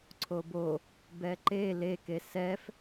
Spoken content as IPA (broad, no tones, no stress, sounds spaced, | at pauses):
ǀʰ o b o | b ɛ ǃ e l e k e s ɛ f